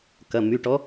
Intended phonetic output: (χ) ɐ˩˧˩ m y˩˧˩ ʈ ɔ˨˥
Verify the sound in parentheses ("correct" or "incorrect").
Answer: incorrect